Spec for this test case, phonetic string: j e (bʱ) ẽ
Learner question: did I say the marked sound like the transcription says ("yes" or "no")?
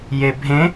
yes